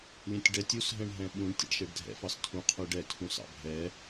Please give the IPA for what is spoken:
lʲɛ̃tʲɖɛtʲ usɦɛ̃ɳɦɛ̃ ɓũɳ tʲɛ̰ɖʃɛɖdʱɛ̰fɑs tʰũ qʰuɖɛtʰũ sɑ̰bʱɛ

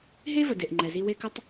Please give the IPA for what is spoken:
ɦe˦ və˨de˨ʔŋ͡ǃɛ˨zi˦ we˦kə˦tˤ

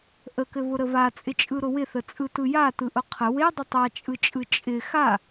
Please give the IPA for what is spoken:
ʔəkɘβʊɾə βat͡sʼɪt͡ʃʼɯɾʊ wɪθət͡sʼɯtɯ jatɯʔʊ qʰə wedˤə tˤat͡ʃʼɯt͡ʃʼɯ t͡ʃʼɪ xa

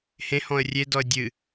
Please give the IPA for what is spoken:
hẽhɔ̃ə̯ rʲedɔə̯ dʲɨ

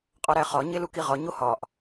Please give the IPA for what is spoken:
qʼɒɾæχɒ ɲelukiʁɒ ɲohɒʔ

